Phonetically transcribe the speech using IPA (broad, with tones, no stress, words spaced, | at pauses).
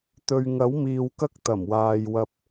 t̪ɵ˨ɥŋɐ˨˥wmiː˨w kɐ˥k̚t̪ɐ˨˩mwaː˨j wɐ˧p̚